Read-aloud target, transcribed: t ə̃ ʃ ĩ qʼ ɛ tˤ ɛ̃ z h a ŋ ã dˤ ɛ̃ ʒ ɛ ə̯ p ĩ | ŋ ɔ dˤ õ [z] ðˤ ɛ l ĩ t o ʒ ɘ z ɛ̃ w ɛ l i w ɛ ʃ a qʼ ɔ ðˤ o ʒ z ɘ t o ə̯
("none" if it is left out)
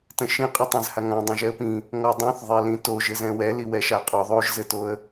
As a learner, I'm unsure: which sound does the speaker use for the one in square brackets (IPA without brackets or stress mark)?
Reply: θ